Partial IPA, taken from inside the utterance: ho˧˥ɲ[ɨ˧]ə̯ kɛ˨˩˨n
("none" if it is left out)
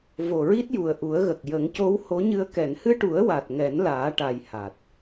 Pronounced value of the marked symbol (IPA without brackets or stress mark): ɨ˧